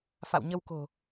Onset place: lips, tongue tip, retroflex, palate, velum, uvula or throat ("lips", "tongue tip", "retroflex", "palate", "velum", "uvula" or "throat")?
lips